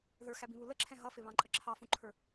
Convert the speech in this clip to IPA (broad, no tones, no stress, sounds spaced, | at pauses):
ð ə˞ x æ b ĩ β u l ə ǁʰ ɛ̃ ɦ ʌ f ɪ β ɑ̃ ǃʼ ə ǁʰ ɑ f ũ ǃʰ ə˞